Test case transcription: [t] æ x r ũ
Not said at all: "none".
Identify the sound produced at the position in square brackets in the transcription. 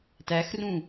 t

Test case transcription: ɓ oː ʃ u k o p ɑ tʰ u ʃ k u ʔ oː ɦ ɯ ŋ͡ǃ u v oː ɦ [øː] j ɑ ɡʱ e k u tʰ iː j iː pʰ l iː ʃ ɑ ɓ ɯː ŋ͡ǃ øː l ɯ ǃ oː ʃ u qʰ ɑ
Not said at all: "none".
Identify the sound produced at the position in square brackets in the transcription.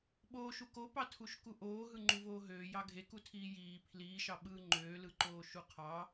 øː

